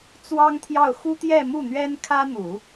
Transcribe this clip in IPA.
t͡s w ɑ˥ ŋ t̪ʰ j ɑ˥˩ ʊ̯ x u˥ t̪ j ɛ˥˧ m u˥˩ n̪ ɥ ɛ˥ n kʰ ä˥ n̪ u˨˩˦

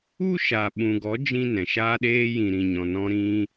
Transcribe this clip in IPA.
u˦ ʃ a˨ ɓ ũ˨ ɡ ɔ˨˦ d͡ʒ ĩ˦ n ɛ̃˨ ʃ aː˧ ɗ eː˧ j ĩ˨ ɾ ĩ˨ ɲ ɔ̃˨ n ɔ̃˧ ɾ ĩ˧

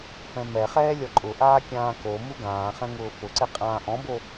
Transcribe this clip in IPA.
f ɛ̃ m ɛ χ ɛː lʲ ɔ ǃʼ ʊ ʔ aː kʲ ãː k o m u ɡ ãː χ ɛ̃ ŋ ʊː f ʊ ǀ ɪ qʼ ãː ʔ ɔ̃ b o

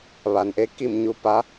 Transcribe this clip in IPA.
ʋ a˩ n ʔ e˧˥ k i˥˨ m ɲ u˧˥ p a˧˥

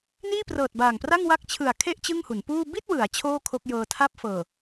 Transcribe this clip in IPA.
n iː˥˩ p r ɤː˨˩ t̚ b aː˨˩ ŋ p r a˥˩ ŋ w a˦˥ k̚ t͡ɕʰ ɯ˨˩ a̯ kʰ e˥˩ ʔ t͡ɕ ɯ˥˩ ŋ h u˩˦ n p uː˥˩ b i˥˩ t̚ w ɯ˩˦ a̯ t͡ɕʰ oː˥˩ kʰ o˦˥ k̚ j ɤː˧ tʰ a˥˩ p̚ f ɤː˨˩

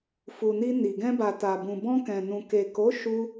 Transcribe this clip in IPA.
f u˨ n i˧ n i˨ ɡ ɛ̃˧ b a˨ t a˨ b ũ˨ b ɔ̃˧ k ɛ̃˨ n ũ˨ k e˨ k o˨˦ ʃ u˧

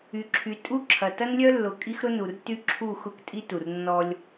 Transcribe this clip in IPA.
y˨ ǁʰ y˨ tʼ u˦ ǁʰ ɐ˨ t ɐ˦ n lʲ œ˦ lː ʊ˨ kʼ i˦ x ɾ ʊ˦ n u˨ r t y˦ ǁʰ u˦˨ x ʊ˦ k tʼ i˦ t u˨ r nː ɔ˦ lʲ

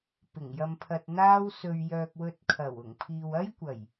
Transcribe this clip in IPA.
p ɪ˨˩ ŋ j ɐ˧ m pʰ ɐ˧ t̚ n̪ aː˥ w s ɵ˧ ɥ j œː˧ k̚ w ɵ˧ t̚ kʰ ɐ˨˩ w ʊ˨˩ ŋ pʰ iː˨ w ɐ˥ j kʷ ɐ˨˩ j

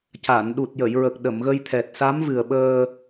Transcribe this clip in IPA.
c a˨˩˨ n ɗ u˨˩ t̚ j ə˨˩˨ j ɹ ə˨˩ k̚ ɗ ə˨˩˨ m ɣ ə˧ j t̪ʰ ɛ˨˩ t̚ s a˧˥ m v ɨ˨˩ ə̯ ɓ əː˧

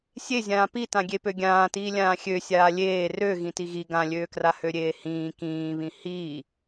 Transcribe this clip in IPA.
sʲ e zʲ ãː p i t ã ɡʲ e p ø ɡʲ ãː t iː lʲ ãː xʲ ø sʲ aː lʲ eː r ø ɣ ĩ t i ɣ i ɡ ã lʲ øː k r a h ø ɾʲ eː h ĩː k ĩː β ĩ h iː

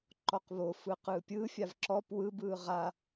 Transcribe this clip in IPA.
ǃ ɔ q β o f ɯ q ɯː pʲ ɯ fʲ a v ǁ ɔ p w ɯ b ɯː ʁ a

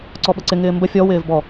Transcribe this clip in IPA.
ǀ ɔ ɓ ə ǀ ɪ ŋ ɪː m b ə fʲ ɔ w ɪː v b ɔ

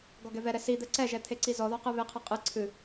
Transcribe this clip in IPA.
ɡ ɔ ɡ ɛ v ɛ ɾ ɛ s i d̪ ɛ ǀ ɛ ʒ ɛ t̪ʰ e ǀ i z ɔ ð ɔ q ɨ β e qʰ ɨ qʼ ɨ ǀʰ ɨ

